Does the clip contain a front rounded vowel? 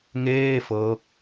no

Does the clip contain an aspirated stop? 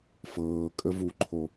yes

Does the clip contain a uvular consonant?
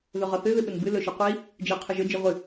yes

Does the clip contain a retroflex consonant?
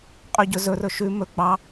no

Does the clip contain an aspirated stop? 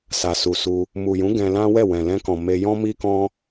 no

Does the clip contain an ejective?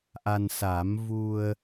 no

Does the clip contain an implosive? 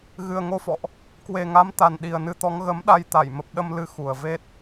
yes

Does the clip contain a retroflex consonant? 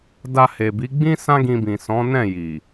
no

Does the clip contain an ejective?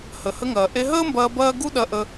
no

